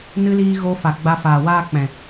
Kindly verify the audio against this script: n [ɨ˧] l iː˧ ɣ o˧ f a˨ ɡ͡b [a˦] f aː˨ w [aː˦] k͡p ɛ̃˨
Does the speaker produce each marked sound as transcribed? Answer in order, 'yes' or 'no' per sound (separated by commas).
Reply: yes, no, yes